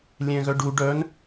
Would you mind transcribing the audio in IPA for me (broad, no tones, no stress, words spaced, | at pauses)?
lʲɛ̃ɣœɖu ɖœn